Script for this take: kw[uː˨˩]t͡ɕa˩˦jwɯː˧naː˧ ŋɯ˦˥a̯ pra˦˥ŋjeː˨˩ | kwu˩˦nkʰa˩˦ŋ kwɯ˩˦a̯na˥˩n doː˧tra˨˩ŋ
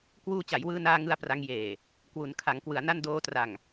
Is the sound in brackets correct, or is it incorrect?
incorrect